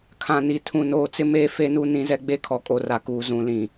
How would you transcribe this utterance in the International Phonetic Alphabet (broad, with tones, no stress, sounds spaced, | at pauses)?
kʰ ã˨ n i˨ tʰ ũ˨ n oː˨ t͡s ɪ˦ m eː˦ f e˦ n u˦ n ĩ˦ z ɛ˦ ɡ͡b e˦ kʰ ɔ˨ kʼ o˨ r a˨ k uː˨ z ũ˨ l ĩ˨